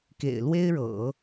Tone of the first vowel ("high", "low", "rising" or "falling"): low